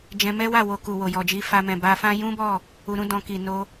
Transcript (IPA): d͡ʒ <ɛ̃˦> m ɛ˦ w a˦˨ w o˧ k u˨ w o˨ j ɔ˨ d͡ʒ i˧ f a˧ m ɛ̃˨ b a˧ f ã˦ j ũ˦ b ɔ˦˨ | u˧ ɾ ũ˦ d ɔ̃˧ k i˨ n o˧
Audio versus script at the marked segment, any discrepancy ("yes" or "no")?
yes